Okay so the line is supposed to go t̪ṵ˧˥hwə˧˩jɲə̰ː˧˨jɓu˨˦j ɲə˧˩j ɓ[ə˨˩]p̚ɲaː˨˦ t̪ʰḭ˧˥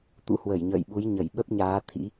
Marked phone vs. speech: incorrect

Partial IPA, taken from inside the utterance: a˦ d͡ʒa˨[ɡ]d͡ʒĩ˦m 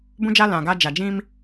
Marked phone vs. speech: incorrect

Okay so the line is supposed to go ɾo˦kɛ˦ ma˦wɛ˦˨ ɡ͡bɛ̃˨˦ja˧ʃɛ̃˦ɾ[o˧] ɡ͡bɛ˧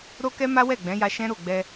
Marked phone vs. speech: incorrect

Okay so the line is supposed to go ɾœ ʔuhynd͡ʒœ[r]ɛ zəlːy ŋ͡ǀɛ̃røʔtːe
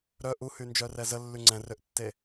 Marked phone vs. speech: correct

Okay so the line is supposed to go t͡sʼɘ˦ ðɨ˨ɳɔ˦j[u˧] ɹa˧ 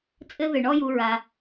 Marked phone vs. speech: correct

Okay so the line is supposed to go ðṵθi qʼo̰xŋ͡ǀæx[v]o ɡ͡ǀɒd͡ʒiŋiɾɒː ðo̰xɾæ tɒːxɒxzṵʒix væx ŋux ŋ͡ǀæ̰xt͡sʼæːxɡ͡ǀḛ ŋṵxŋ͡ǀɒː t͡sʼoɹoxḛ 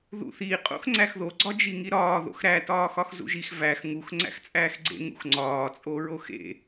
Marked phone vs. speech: incorrect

